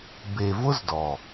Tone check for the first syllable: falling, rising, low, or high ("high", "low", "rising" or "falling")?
low